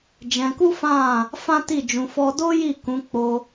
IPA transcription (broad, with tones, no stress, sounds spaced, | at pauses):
d͡ʒ ɛ̃˧ k u˦ f ã˦˨ | f ã˦ t i˦˨ d͡ʒ ũ˧ f ɔ˧ d o˦ j i˦˨ k ũ˨˦ k͡p o˧